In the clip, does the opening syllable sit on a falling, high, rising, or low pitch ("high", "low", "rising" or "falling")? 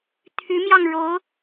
rising